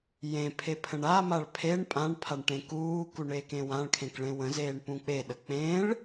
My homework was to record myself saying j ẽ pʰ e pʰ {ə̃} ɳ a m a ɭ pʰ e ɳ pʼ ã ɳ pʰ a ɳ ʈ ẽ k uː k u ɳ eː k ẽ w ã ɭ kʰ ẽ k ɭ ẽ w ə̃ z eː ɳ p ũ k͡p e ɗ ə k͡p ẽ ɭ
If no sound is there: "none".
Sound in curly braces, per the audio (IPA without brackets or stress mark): ə̃